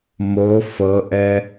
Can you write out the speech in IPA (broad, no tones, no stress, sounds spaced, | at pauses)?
m o f ɤ ʔ ɛ